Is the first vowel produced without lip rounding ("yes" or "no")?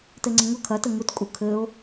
yes